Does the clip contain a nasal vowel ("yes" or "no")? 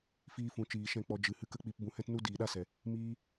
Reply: yes